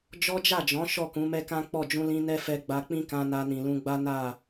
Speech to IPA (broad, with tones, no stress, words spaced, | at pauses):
d͡ʒɔ˦d͡ʒa˦˨d͡ʒɔ̃˨˦ ʃɔ˦˨kũ˨˦mɛ˦kã˦ k͡pɔ˦˨ d͡ʒũ˧lĩ˧ nɛ˦fɛ˧ ɡ͡ba˧k͡pĩ˦kã˧ na˧nĩ˨lũ˧ɡ͡ba˦ na˦˨